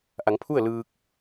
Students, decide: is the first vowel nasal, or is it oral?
oral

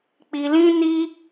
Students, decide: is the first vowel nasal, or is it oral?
oral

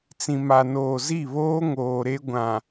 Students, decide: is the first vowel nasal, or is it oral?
nasal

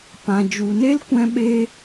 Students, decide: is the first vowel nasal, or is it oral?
nasal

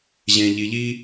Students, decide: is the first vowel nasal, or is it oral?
nasal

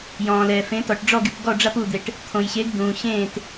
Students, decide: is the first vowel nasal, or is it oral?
nasal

